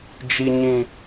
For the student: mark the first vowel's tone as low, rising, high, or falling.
low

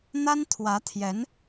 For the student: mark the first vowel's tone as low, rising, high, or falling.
high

